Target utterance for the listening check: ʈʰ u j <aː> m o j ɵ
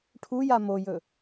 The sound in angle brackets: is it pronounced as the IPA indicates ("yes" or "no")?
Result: no